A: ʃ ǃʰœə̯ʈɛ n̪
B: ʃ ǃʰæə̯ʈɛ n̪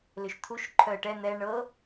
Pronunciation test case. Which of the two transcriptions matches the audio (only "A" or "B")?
A